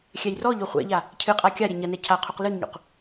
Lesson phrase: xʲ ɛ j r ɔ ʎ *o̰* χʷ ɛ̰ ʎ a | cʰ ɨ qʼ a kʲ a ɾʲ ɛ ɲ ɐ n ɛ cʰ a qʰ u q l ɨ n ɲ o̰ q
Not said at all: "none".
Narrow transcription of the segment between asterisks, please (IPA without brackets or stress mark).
o